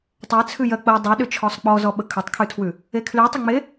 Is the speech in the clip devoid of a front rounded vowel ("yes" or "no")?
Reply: no